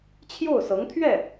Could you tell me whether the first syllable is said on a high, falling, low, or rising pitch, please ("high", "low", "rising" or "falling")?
falling